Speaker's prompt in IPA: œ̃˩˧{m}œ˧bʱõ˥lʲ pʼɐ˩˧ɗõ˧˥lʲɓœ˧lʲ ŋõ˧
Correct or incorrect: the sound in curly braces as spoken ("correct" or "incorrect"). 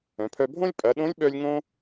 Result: incorrect